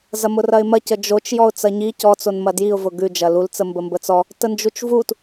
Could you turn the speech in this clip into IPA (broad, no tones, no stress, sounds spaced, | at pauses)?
z ɐ m ʊ r ɐ ɪ̯ m ɐ c ə d͡ʒ o t͡ʃ j ɔ ʊ̯ t͡s ɐ ɲ i c ɔ t͡s o n m ɐ d j i ʊ̯ v ʊ ɡ ʉ d͡ʒ ɐ l u l t͡s ə m b ə m b ə t͡s ɔ | t ə n d͡ʒ u t͡ʃ v u t